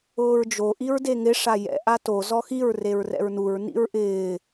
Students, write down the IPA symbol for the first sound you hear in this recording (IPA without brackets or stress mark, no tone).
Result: ʊː